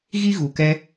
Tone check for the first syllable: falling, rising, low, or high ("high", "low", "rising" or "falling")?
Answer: high